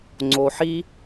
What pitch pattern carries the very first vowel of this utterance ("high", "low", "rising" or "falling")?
low